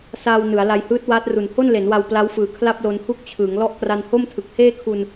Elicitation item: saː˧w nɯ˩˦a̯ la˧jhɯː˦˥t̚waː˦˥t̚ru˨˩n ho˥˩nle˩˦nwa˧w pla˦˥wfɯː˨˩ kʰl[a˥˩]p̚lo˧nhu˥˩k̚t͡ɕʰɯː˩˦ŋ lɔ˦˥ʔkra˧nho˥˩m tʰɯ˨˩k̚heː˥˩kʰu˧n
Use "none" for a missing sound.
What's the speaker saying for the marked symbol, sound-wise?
a˥˩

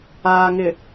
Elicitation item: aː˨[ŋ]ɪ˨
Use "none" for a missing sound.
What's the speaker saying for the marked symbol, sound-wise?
ŋ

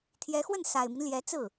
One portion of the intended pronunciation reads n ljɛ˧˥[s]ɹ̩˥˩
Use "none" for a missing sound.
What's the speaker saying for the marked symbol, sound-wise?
t͡s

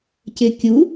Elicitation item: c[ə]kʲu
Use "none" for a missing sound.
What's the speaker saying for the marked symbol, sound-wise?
ɪ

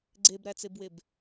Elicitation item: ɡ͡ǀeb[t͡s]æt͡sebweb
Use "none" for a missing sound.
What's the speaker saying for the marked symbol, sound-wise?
ɾ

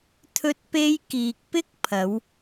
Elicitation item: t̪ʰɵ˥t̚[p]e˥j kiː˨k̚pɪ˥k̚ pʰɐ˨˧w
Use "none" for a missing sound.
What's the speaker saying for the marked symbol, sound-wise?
p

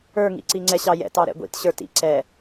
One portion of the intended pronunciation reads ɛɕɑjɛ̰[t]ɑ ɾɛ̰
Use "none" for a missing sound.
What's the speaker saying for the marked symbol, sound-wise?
t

